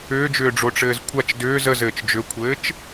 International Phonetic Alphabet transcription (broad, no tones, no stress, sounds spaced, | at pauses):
ʏː d͡ʒ ʏː ɖ͡ʐ o ʈ͡ʂ ɘː z kʷʰ a t͡ʃ d ʏː z ə z ɘː t͡ʃ d͡ʒ ʏ kʷʰ ɘː t͡ʃ